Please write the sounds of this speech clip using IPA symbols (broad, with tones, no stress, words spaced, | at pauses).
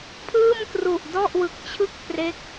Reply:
pʰɯː˥˩mkru˨˩ʔdɔ˥˩ʔwɯ˨˩k̚ t͡ɕʰɯ˥˩k̚pre˦˥k̚